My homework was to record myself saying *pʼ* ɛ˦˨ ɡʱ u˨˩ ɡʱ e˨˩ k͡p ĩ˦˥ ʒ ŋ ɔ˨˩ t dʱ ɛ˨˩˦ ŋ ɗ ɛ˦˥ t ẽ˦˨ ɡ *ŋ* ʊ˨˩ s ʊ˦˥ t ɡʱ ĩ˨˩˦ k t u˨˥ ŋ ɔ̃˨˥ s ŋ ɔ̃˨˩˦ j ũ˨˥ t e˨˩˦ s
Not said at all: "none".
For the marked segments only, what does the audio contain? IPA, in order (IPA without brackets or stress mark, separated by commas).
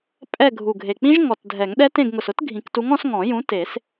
pʼ, ŋ